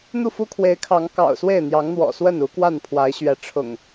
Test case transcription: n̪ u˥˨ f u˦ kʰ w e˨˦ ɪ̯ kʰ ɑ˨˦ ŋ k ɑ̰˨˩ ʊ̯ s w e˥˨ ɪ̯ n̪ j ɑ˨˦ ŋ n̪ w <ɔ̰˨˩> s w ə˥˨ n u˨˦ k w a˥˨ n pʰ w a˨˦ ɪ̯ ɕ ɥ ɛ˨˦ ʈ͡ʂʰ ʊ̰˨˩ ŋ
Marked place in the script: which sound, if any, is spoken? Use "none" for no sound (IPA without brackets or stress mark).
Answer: ɔ̰˨˩